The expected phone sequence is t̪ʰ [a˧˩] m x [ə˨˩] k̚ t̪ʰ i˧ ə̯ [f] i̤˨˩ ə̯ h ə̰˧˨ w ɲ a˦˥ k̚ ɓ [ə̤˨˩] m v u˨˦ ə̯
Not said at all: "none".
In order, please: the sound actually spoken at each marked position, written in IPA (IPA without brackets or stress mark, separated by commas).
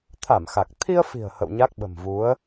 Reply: a˧˩, a˨˩, f, ə̤˨˩